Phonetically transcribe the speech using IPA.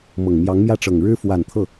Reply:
mɤ˨˩ŋmjɑ˧˥ŋmjä˥˩ ʈ͡ʂɤ˨˩ŋɻɻ̩˥ fwa˨˩n t̪ʰɤ˥˩

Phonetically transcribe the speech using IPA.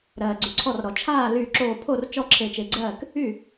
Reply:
ɾɜː˩ɡ͡ǀy˩ǀʰɔ˧˩rɾɔ˩ t͡ʃʰaː˥˩lyː˧˩ǁoː˧˩pʰo˥˩r t͡ʃɔ˥˩ǁʰe˧˩t͡ʃe˧˩ɡ͡ǀɜː˥˩k | y˥˩

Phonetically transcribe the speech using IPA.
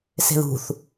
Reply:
se̤ðṳθ

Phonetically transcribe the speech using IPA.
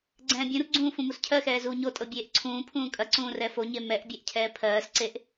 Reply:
ɡ͡ǀɛ̃ːbʲũrɡ͡ǀũː fũmuscʰɜxɛː zuːɲotʼɤ bʲeːʔǀʰũːpʰũː kʼɐǀũː rɛfoɲe mɛʔbʲɛʔ cʰɛːpʰɜːsǀeʔ

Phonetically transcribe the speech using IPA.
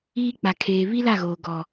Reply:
iː˦ k͡pa˨kʰeː˨ βi˦la˦˨ɣoː˨ ɡɔ˨

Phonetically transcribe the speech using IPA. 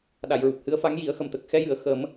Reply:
ɗa˨˩˨jɹu˨˩p̚hɨ˧˥ə̯fa˧˥ŋ ji˨˩˦ə̯xə˨˩mt̪ə˨˩k̚ xɛ˧jɨ˨˩˨ə̯ xə˨˩˦m

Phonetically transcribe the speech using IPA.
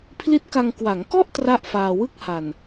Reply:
pʰli˦˥t̚ka˧ŋ kwa˩˦ŋkɔ˥˩ʔ tra˥˩ʔfaː˧ wɯ˥˩k̚ha˨˩n

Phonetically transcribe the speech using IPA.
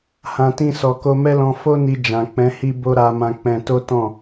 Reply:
hã˨tĩ˧ sɔ˨ko˧mɛ˦ lɔ̃˧fo˦ni˧ d͡ʒã˨ k͡pɛ̃˨˦ hi˦bo˦ ɾa˧mã˧k͡pɛ̃˧ to˦tɔ̃˦˨

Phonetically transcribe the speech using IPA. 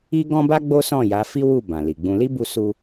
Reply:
i˦ɡɔ̃˦ba˦ ɡ͡bo˦sɔ̃˦˨ja˨˦fi˦ wu˦˨ bã˨li˨ɡ͡bũ˧ li˦bu˧su˧

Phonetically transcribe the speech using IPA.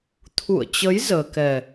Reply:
t̪ʰṵ˧˨ə̯t͡ɕə˨˦j zəː˧ kɛ˨˩

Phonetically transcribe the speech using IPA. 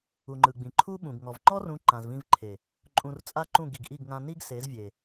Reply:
u˨ŋ͡ǃɯ˨ɡ͡bĩ˨ ǃʰu˦ɓũ˨ɡŋɔ˨v ŋ͡ǃɔ˦rũ˨˦ ǃã˨zvĩ˧vǃʰe˨ | ǃʼũ˧rt͡sʼa˦ǃũ˦˨ ɡi˨ɡʔi˦˨ɡŋã˧ ni˦ɡse˨˦zvʲe˨

